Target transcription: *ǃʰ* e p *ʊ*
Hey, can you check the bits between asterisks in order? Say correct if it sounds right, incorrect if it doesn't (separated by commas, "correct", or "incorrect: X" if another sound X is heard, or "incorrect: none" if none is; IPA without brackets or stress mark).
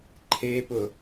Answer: correct, correct